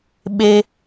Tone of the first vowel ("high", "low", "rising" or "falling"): high